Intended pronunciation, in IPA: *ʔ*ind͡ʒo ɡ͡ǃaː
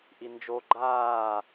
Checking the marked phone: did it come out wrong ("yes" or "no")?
no